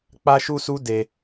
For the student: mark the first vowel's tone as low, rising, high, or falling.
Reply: high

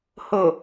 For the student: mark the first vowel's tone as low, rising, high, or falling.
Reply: low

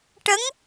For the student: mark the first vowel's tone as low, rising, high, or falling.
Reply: rising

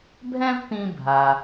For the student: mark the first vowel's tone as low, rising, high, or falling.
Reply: high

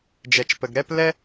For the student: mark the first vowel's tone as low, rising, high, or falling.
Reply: low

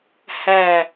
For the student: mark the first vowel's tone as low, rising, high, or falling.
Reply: low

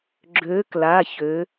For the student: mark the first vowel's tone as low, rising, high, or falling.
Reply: rising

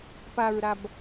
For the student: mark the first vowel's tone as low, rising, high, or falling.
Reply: low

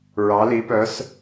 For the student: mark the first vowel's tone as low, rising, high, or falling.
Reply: rising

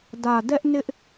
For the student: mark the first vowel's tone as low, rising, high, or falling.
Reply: low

